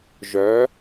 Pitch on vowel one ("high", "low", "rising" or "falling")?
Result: rising